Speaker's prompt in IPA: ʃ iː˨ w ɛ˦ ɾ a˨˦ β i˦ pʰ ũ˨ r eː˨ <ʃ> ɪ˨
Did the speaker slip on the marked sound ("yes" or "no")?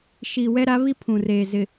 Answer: yes